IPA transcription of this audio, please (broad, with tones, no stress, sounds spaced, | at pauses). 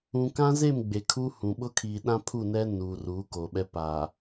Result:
ũ˨ k ã˦ z e˦˨ m ɡ͡b e˨ kʰ u˦ h ũ˨ ɓ ʊ˦ kʰ iː˨ ɗ ã˦ pʰ u˦˨ n ɛ˦ n uː˨ r uː˨˦ k o˨ ɓ ɛ˦ p a˨